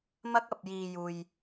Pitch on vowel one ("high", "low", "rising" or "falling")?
high